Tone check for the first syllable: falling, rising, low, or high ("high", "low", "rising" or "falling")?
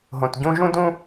low